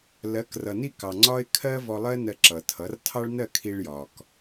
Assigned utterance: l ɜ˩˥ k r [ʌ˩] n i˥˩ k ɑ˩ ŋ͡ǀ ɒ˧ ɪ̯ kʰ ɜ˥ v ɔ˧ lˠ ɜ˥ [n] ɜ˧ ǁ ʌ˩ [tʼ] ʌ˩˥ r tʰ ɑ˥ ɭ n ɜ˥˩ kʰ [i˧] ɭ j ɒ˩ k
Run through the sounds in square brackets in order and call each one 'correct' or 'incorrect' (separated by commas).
correct, correct, incorrect, correct